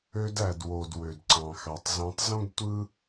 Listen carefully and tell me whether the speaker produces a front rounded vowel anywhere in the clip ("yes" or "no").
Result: yes